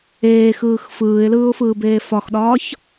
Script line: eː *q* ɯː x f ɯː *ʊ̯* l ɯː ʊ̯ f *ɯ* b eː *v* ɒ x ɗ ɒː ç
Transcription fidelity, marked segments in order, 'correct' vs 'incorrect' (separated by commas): incorrect, incorrect, incorrect, incorrect